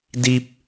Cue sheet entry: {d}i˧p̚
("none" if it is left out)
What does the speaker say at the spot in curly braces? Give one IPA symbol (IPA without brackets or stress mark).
d